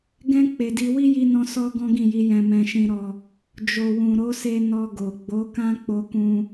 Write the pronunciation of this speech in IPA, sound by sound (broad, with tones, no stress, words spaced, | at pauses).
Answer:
ɡɛ̃˧ k͡pe˨di˧ wi˦ji˧nɔ̃˧ sɔ˧ ɡɔ̃˦ɡĩ˦˨ji˨˦ jɛ̃˧mɛ̃˧ʃĩ˧ɾɔ˧ | d͡ʒo˨wũ˨ɾo˨˦se˧ nɔ˧ɡo˨ ɡ͡bo˨˦kã˦ k͡po˧kũ˧